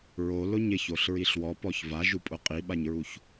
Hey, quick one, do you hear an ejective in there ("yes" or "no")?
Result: yes